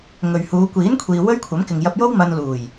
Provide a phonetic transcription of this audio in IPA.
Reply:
ŋ ɵ˨ ɥ h uː˨˧ kʷ iː˨˥ n kʷʰ iː˨ w ɵ˥ ɥ kʷʰ ɐ˨˥ m k ɪ˨ ŋ j ɐ˧ p̚ j o˥ w m ɐ˧ n l uː˨˩ j

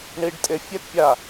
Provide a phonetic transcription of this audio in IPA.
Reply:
ɳ i ɖ tʼ e fʲ ɛ t pʲ a

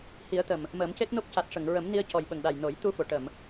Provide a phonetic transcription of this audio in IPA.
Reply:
h i˨˩˦ ə̯ t̪ ə˨˩ m | m əː˨˩˦ m c e˦˥ t̚ n o˦˥ p̚ c a˨˩ t̚ ʂ ə˨˩˨ ŋ ɹ ə˨˩˦ m n i˧ ə̯ c ɔ˨˩ j ɓ ə˨˩ ŋ ɗ a˨˩ j n o˨˩˦ j t̪ u˧ f o˨˩˨ ʈ ə˨˩˨ m

